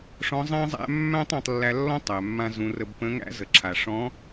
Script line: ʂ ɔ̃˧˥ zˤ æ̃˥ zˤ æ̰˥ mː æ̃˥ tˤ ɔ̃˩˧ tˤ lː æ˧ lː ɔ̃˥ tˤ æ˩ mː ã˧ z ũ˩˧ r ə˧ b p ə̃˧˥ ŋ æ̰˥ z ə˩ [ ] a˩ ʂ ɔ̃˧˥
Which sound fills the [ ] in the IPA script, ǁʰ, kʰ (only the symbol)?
ǁʰ